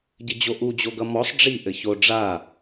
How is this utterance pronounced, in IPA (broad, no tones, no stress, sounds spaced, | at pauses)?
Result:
ɟ ɘ d͡ʑ o ʔ u d͡ʑ o ɡ ʌ m ɔ sˤ ɖ͡ʐ i ʔ ɘ ç o ɖ͡ʐ a